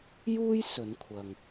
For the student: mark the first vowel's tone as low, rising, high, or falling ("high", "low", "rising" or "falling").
high